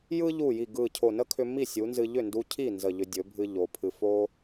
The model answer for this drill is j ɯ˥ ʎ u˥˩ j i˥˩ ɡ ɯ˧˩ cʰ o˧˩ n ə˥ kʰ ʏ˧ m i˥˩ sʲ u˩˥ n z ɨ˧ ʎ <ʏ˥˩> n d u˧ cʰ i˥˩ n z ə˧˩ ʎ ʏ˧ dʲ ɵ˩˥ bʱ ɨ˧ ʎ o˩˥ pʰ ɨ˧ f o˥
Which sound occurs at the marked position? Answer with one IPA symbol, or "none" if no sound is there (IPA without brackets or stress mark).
ʏ˥˩